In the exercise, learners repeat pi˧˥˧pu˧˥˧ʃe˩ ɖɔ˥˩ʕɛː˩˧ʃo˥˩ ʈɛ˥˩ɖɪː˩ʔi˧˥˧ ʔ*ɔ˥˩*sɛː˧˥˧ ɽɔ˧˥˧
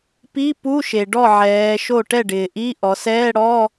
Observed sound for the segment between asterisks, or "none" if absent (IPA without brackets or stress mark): ɔ˩˧